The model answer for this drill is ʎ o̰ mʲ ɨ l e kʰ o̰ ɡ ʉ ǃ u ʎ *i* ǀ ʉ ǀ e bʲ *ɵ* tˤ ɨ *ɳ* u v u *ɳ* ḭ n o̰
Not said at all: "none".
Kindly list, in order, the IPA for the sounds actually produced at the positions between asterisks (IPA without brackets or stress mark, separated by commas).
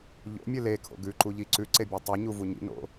i, ɵ, ɲ, ɲ